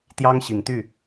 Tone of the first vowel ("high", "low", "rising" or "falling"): high